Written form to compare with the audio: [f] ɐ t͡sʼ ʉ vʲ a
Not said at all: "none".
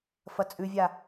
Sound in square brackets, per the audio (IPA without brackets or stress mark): f